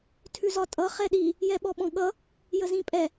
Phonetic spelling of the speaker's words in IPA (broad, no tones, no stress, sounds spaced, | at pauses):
tʰ ʉ z ɒ tʼ ʌ χ ɛ ɗ i | j ɛ ɓ ɔ ɓ ɔ̃ ɠ ʌ | j ə z ĩ pʼ ɛ